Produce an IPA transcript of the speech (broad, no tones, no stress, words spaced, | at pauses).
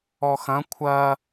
ɔxɐ̃ kʷʰɐ